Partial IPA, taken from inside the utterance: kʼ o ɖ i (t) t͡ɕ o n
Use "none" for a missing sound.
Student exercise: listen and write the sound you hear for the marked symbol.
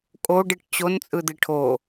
ʈ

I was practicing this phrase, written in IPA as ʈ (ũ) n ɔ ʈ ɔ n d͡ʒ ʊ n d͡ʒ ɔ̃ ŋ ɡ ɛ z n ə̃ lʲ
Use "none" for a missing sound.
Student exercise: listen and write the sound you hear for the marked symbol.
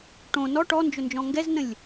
õ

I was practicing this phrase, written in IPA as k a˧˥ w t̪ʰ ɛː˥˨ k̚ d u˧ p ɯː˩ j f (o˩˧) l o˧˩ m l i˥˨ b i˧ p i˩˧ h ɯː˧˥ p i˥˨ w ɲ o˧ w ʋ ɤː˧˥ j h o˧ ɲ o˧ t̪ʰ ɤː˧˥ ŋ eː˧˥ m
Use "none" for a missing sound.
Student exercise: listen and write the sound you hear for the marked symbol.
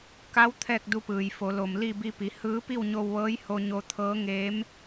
o˩˧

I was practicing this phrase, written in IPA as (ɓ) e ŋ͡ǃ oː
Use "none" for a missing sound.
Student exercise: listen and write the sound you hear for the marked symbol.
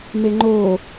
m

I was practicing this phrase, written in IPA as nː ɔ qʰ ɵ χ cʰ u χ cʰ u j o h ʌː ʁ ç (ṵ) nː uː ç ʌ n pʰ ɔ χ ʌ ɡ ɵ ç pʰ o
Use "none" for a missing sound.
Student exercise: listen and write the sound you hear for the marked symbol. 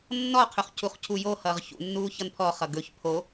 ṵ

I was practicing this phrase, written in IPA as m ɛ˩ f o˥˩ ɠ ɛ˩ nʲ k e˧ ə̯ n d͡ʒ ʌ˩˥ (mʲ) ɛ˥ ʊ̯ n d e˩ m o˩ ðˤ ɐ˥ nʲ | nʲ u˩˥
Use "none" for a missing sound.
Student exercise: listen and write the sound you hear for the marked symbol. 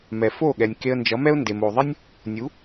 m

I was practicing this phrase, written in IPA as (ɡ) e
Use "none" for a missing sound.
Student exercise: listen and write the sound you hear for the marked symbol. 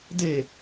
d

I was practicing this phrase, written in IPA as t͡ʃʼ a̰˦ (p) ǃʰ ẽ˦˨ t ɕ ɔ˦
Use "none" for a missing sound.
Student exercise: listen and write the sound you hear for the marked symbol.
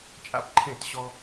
p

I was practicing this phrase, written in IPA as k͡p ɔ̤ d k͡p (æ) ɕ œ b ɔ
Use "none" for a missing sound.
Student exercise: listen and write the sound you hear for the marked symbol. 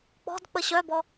ə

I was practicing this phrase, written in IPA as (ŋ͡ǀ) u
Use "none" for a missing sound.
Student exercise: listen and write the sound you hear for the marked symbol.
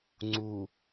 ŋ͡ǀ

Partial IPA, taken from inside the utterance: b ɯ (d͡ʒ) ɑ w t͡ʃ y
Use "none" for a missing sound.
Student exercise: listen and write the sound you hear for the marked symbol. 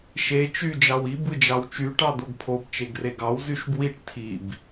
d͡ʒ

